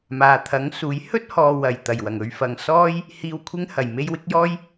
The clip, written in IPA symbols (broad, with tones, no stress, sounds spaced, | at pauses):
m aː˨ t̪ʰ ɐ˨˥ ŋ s uː˨˥ j h ɵ˥ t̚ h ɔː˨ w ɐ˨˩ j t̪ ɐ˨˩ j w ɐ˨˩ ŋ ɵ˧ ɥ f ɐ˨ ŋ s ɔː˥ j | h iː˧ w kʷʰ ɪ˥ ŋ h ɐ˨˩ j m e˥ j w ɪ˥ k̚ j ɔː˥ j